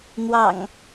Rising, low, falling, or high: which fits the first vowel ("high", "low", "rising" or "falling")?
low